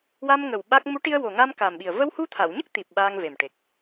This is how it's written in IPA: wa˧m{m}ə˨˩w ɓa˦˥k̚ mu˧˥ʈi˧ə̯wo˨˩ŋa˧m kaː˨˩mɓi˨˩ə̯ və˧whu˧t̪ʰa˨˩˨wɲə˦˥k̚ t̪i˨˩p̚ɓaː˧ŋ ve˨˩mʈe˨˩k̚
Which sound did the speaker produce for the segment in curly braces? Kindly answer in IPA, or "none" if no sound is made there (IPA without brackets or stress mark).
ŋ